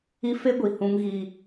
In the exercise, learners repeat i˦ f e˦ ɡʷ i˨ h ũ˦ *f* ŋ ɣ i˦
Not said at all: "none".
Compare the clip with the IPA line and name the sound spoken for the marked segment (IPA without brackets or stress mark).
none